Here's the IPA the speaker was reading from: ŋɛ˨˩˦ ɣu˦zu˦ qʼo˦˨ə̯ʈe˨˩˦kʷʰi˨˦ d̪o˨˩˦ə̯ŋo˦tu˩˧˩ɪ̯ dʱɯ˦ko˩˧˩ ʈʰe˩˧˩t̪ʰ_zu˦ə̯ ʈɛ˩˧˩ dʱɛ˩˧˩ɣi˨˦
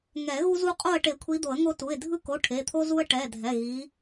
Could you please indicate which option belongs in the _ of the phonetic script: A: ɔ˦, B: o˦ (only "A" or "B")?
B